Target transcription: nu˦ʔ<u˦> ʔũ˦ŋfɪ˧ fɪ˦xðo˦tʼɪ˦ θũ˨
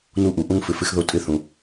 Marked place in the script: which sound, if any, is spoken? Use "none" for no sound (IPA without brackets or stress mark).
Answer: u˨